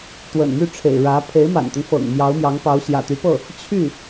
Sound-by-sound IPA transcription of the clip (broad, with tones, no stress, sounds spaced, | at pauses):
t̪ w ə̰˨˩ n m y˥˩ ʈ͡ʂʰ ḛ˨˩ ɪ̯ ɻ ä˧˥ pʰ e˧˥ ɪ̯ m a̰˨˩ n t̪ ʊ˦ ŋ f ɤ̰˨˩ ŋ m j ɑ˧˥ ʊ̯ m j ɑ˧˥ ŋ p ɑ˧˥ ʊ̯ ɕ j ä̰˨˩ t̪ y˧˥ p ɤ˥˩ | t͡ɕʰ y˥˩